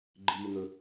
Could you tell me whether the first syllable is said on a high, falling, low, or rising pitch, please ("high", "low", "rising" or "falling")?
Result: low